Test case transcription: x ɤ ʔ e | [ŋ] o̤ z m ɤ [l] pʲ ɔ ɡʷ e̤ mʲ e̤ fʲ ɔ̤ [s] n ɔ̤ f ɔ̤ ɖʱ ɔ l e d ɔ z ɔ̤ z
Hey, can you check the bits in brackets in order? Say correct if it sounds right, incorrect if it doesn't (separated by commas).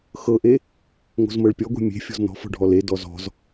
correct, incorrect, incorrect